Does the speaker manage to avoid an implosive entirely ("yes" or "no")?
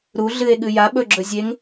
no